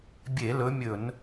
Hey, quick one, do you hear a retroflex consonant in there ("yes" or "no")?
no